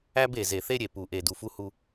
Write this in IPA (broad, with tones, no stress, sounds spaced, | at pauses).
æ˦ b e˨ z e˨ θ e˦ ɾʲ e˨ p u˨ ʔ e˨ d u˨ f u˦ h u˦